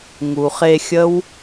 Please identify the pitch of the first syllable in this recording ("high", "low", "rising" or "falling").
low